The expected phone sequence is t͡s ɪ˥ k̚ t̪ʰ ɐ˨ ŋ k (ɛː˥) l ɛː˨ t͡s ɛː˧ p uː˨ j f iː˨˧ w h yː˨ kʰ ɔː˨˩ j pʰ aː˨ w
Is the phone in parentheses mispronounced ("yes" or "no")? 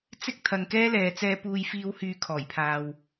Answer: no